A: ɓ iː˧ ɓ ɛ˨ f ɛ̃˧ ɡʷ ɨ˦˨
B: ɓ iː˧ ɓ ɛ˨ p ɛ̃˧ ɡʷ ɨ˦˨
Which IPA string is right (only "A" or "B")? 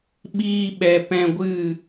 B